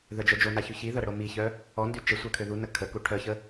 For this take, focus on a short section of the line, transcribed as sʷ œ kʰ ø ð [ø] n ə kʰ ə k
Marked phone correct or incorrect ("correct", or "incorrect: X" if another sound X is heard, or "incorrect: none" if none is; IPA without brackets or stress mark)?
incorrect: u